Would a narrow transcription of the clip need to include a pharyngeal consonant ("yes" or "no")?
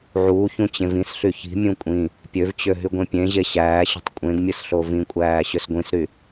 yes